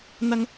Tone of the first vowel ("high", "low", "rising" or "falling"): high